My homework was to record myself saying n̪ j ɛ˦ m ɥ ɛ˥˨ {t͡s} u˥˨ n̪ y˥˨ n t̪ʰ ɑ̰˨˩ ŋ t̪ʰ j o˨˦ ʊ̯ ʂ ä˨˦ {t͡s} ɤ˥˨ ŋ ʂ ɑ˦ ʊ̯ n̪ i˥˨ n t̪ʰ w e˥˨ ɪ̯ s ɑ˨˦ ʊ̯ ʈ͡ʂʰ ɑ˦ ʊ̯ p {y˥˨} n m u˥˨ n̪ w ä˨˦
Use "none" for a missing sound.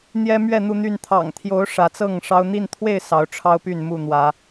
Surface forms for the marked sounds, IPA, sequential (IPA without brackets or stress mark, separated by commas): n̪, t͡s, y˥˨